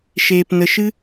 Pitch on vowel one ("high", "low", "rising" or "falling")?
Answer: low